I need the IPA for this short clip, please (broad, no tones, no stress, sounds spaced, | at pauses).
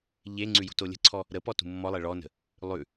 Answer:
ʎ e ŋ͡ǀ ʉ j ṳ t o lʲ ə̤ ǀʰ ɔ | ɾ ə p ɔ t ṳ mː ɔ lˠ e ɭ ɔ n ə̤ | lˠ ʉ